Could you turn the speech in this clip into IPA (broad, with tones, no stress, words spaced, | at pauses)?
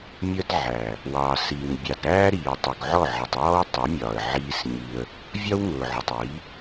mʲə˧d ʕæ˨ | wɑ˨si˨ŋ bʲɑ˨dɾæː˦ɾiː˨ tˤʊ˨ɡʕɔ˦˨ʕə˨tˤ wɔ˦wtˤʌ˨˦mʲɒː˨ə̯ ʕiː˧s ɲi˧ə̯ | vʲɒ˦wŋʊː˨ʕʊ˨tˤi˨˦